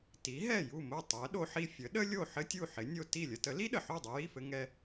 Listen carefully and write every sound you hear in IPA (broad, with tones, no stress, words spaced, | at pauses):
ti˩˥ɦɛ˥˩ju˥˩mo˥˩ tˤɛ˩˥ ɗo˧ħi˧ fʲə˩˥ ɗə˥lʲo˥˩ ħɘ˥tʲu˥˩ ħɪ˩˥nʲo˧ ti˥˩ lʲə˧tə˩˥li˥ɗə˩ ħo˥˩dˤə˧ji˥˩fɘ˧ ŋɛ˧